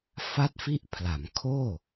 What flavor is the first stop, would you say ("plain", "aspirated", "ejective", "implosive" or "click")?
plain